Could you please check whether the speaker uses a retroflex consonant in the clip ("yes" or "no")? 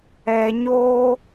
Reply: no